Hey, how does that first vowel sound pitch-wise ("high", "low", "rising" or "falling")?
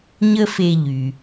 high